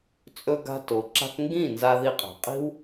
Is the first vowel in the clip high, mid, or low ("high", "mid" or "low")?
mid